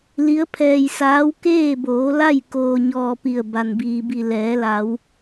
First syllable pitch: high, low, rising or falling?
rising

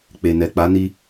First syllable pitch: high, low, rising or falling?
low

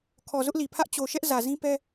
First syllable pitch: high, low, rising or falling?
low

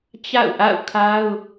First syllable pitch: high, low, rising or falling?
falling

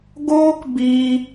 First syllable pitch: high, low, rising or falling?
high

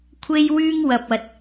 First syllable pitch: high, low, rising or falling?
high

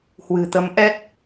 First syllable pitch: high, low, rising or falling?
low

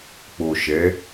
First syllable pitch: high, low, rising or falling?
low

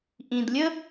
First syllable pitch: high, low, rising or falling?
low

